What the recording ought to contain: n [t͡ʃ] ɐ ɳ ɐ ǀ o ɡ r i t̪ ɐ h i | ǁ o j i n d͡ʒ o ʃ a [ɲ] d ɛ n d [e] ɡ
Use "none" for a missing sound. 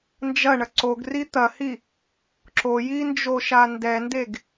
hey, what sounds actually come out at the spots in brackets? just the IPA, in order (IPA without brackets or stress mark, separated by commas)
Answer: d͡ʒ, n, e